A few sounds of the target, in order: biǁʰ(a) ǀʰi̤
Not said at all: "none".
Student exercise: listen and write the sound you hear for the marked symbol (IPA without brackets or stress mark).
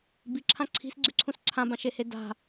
ã